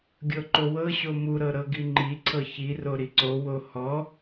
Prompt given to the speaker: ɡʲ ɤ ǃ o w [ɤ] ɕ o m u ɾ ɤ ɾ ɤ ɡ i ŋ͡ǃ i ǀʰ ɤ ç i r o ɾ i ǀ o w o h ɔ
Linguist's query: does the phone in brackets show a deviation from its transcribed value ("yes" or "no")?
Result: no